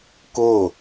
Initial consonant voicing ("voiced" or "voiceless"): voiceless